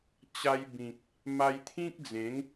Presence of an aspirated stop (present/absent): present